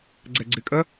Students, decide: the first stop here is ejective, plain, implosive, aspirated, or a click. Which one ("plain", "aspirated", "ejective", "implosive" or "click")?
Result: click